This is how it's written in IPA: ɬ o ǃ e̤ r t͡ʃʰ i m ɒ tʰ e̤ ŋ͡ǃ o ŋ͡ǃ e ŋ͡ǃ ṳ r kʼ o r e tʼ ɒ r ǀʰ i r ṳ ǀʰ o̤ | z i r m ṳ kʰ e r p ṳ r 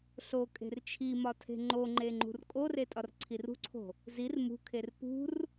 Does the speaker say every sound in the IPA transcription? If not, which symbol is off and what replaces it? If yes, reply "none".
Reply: ǃ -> kʼ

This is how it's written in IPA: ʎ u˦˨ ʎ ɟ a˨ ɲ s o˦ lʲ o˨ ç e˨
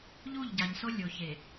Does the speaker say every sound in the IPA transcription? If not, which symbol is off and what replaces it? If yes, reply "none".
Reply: none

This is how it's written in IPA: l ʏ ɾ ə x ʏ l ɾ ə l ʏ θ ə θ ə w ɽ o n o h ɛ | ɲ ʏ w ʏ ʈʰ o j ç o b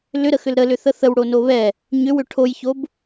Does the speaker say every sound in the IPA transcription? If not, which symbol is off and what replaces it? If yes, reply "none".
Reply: h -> β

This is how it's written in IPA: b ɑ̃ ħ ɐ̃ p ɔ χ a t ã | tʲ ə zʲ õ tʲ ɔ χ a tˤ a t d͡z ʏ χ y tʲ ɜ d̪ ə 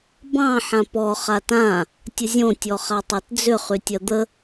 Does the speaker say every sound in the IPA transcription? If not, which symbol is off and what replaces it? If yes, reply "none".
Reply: ɐ̃ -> ã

